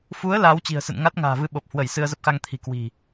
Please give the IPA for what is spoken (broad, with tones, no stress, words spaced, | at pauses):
fu˨˦ə̯ laː˨˦wt͡ɕi̤˨˩ə̯sɨ̰˧˨n ŋa˦˥t̚ŋa̤ː˨˩vɨ˧ ɓo˨˩p̚hwə˧˩j sɨ˧ə̯zə˦˥p̚xa˧ŋt̪ʰi̤˨˩ kwi̤˨˩